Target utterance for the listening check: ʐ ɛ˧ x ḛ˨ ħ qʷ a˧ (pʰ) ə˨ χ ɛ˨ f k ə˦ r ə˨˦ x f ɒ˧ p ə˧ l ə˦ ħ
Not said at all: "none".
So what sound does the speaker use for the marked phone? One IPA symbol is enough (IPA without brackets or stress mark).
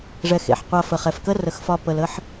f